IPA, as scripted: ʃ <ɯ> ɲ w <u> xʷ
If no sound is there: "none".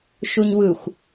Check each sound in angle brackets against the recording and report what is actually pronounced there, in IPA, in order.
u, ɯ

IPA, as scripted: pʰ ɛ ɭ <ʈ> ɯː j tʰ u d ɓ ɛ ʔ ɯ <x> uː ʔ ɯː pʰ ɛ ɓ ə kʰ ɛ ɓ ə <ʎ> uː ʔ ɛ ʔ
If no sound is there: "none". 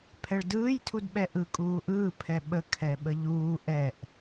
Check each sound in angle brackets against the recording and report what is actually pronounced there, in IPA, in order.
d, kʼ, ʎ

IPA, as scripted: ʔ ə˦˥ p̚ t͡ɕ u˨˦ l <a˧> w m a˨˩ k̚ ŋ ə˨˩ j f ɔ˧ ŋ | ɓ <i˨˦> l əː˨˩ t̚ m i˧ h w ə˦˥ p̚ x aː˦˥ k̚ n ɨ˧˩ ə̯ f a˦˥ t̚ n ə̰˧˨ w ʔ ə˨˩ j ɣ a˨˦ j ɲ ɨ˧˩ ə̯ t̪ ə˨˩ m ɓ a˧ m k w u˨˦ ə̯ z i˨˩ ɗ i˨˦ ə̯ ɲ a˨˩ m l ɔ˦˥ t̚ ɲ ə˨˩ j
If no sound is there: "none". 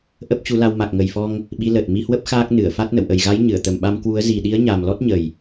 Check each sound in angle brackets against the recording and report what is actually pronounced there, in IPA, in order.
a˧, i˨˦

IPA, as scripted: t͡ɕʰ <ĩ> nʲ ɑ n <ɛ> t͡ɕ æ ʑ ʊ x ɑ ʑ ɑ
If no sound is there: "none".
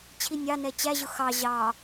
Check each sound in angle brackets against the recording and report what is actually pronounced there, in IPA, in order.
i, ɛ

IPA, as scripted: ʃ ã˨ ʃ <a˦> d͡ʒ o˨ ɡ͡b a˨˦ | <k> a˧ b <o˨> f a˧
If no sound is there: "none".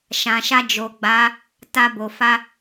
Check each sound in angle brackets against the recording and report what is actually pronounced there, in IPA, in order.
a˧, t, o˨

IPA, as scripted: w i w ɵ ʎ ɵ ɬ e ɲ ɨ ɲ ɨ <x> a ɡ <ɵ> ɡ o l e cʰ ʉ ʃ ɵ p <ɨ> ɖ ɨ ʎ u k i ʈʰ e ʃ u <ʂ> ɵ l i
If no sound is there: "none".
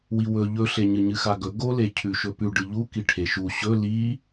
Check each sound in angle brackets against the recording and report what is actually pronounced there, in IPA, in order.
x, ɵ, ʉ, ɕ

